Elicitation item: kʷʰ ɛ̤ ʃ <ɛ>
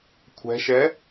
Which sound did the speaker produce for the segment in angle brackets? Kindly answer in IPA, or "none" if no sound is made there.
ɛ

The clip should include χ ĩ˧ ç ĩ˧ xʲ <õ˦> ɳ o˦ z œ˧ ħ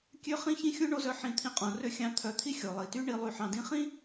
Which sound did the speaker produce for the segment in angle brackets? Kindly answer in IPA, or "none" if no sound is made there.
õ˧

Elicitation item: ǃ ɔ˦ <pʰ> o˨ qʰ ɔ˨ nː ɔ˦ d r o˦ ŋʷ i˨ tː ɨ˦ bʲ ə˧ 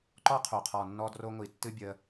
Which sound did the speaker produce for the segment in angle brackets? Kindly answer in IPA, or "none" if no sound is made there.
qʰ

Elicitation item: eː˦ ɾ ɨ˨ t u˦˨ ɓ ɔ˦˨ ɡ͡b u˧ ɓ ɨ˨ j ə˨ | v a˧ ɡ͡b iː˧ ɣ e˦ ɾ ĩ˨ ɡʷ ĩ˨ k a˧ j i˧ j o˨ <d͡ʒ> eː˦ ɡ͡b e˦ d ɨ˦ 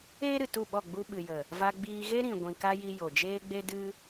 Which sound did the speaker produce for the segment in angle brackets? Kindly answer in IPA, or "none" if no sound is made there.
d͡ʒ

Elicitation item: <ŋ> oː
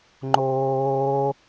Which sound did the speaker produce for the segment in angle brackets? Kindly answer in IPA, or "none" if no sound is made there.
ŋ͡ǃ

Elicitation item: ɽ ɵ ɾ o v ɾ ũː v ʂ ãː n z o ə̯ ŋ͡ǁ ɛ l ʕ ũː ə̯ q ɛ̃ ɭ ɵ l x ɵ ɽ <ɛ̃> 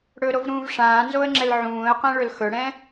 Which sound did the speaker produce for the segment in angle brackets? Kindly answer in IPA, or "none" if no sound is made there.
ɛ̃ː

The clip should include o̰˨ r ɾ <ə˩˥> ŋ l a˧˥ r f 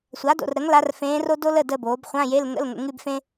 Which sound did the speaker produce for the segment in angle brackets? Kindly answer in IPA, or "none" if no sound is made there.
ə˩˥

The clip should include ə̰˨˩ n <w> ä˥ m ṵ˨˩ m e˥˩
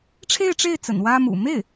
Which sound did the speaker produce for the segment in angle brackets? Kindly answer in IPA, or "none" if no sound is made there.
w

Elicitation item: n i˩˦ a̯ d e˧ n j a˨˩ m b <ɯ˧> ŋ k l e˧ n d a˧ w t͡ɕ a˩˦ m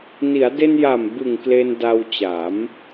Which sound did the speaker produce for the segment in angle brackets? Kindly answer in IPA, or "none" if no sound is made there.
ɯ˨˩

